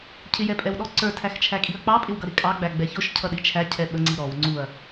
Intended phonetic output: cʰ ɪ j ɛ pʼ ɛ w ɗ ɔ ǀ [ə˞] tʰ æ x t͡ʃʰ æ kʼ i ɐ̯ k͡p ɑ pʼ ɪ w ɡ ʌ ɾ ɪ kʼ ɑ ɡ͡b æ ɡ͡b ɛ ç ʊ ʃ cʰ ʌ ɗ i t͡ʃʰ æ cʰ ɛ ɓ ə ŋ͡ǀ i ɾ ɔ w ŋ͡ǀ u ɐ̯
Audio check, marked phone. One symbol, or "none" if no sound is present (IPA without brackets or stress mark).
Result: ə˞